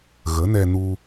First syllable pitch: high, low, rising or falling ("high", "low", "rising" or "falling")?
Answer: rising